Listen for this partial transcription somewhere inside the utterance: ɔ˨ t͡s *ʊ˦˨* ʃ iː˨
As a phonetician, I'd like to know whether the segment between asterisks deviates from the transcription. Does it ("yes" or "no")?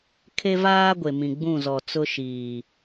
yes